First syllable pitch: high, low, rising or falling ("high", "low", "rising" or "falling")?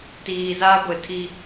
low